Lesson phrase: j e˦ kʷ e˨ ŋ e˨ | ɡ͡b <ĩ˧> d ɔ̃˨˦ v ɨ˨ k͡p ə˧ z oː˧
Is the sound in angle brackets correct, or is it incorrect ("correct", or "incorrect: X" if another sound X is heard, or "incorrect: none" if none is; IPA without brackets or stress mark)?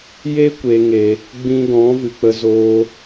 correct